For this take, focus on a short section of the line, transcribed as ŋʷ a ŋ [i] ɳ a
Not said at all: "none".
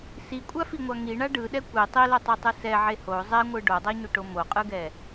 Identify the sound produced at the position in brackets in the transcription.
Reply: i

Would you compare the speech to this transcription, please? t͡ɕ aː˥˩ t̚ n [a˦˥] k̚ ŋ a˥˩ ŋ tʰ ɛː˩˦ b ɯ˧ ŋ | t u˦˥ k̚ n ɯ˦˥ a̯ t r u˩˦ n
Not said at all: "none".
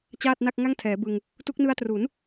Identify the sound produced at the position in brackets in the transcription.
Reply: a˥˩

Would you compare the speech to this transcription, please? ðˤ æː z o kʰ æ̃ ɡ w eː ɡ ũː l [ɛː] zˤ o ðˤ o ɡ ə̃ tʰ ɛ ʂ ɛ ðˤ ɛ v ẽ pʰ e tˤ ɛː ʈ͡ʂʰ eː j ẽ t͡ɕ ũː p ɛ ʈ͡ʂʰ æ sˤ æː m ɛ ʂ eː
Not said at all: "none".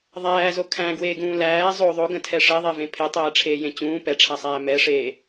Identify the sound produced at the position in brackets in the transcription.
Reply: æː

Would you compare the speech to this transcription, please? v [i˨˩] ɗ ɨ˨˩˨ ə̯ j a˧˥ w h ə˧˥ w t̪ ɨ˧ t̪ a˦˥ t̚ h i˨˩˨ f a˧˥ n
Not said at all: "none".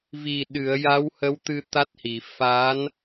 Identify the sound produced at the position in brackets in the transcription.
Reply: i˨˩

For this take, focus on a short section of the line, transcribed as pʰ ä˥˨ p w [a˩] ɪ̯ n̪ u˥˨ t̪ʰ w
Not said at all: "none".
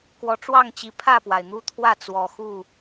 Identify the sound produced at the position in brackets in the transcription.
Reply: a˩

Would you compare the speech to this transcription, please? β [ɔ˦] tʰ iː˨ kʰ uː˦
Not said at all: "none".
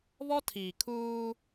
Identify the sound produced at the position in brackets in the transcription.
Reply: ɔ˦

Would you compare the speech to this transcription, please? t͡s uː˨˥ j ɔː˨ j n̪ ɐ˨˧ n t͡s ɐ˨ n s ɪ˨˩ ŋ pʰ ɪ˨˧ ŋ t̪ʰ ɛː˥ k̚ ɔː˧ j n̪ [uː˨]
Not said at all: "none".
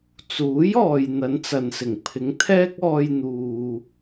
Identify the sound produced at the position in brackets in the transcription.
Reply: uː˨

